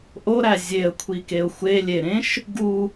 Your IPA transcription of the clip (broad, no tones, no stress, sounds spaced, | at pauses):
ʔ o ɾ æ zʲ e ə̯ kʷʰ i k e ʊ̯ xʷ e lʲ e ɾ ẽ ʃ | ɡ u